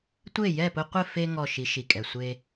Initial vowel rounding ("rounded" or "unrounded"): unrounded